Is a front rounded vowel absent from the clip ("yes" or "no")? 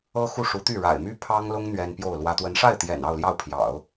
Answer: no